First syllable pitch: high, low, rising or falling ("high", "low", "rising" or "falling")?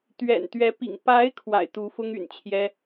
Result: low